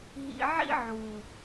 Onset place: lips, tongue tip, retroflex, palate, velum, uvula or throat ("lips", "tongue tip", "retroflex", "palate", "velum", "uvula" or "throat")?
throat